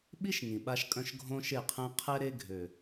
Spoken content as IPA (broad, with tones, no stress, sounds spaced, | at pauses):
ɓ i˦ ʃ ŋ ĩ˨ ɓ a˦ ʃ kʼ œ̃˦ ʃ ɡʱ õ˦ ʃ e˦˨ qʰ ɛ̃˦ qʰ ɛ˦ ɾ e˦ ɡʱ ø˨